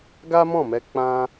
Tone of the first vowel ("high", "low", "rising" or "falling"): high